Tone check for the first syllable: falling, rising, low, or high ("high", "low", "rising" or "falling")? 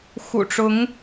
low